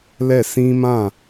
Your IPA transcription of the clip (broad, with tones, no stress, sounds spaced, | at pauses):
l ɛ˦˨ s ĩ˦ m ã˦˨